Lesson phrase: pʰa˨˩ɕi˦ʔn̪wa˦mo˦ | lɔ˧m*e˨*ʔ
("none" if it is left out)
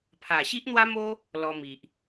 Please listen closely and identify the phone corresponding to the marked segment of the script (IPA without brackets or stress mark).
i˨